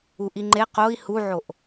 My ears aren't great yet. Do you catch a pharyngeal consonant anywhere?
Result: yes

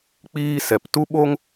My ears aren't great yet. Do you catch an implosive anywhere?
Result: yes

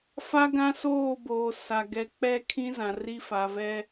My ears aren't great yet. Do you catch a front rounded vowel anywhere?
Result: no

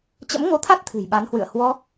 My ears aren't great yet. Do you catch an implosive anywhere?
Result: yes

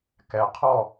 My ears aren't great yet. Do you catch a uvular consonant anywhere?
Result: yes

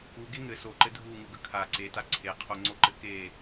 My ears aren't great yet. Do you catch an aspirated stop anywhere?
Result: yes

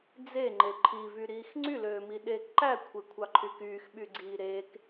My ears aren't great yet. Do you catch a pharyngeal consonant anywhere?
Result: no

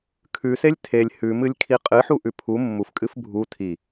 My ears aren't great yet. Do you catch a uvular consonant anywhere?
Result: yes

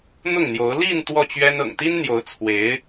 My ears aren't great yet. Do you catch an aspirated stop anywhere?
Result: yes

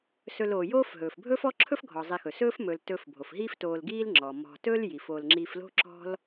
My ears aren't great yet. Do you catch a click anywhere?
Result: yes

